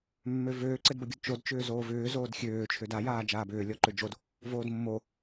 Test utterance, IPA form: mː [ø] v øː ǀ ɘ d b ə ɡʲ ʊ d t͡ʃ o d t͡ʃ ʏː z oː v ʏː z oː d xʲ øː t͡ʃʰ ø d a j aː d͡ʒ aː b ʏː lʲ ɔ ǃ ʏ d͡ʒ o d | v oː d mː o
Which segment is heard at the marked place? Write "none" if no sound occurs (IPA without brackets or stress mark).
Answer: ø